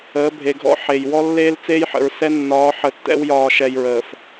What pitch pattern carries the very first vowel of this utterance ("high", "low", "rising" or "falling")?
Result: rising